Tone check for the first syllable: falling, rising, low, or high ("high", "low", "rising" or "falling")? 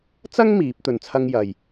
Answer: high